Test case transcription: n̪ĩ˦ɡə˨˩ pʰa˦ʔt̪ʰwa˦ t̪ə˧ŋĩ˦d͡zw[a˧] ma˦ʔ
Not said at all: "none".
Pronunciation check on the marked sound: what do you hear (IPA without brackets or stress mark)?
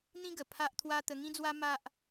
a˦